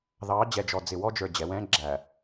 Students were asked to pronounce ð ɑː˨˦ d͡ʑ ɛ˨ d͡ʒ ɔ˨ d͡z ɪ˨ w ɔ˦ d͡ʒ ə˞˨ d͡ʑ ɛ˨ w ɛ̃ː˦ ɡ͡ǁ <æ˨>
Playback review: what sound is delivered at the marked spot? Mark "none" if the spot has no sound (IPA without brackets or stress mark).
æ˨